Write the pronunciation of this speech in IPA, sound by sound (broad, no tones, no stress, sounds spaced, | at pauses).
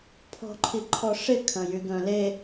pʰ ɔ̤ ǃʰ i ǃʰ ɔ ʂ ɪ kʰ ɐ̃ j y ɡ œ̃ l e